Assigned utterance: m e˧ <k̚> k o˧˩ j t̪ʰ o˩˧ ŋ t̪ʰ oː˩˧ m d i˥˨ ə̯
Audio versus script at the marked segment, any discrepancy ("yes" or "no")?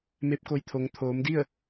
yes